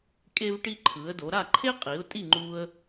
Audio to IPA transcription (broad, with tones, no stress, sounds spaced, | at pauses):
kʼ e˥ v ʈ i˥ ǃʰ ɯ˩˥ ə̯ d o˩˥ ɾ a˥˩ ǃʰ e˥ qʼ i˩˥ ʊ̯ tʼ i˥˩ ŋ͡ǃ u˧ ə̯